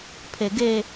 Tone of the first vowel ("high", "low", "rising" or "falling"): low